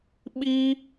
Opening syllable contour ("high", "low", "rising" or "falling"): high